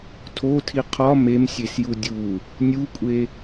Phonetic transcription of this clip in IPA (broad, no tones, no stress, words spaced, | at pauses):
tʰotʰi qʰɒ memsʲesju dʲu | nʲukʷʼe